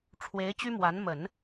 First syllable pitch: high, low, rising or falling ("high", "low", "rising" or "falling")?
rising